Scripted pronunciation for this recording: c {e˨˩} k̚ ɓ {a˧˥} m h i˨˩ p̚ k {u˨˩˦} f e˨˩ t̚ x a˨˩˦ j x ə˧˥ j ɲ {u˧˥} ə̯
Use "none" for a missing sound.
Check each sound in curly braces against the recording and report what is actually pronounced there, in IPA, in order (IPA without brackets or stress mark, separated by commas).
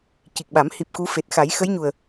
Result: i˨˩, a˨˩˦, u˧˥, u˨˩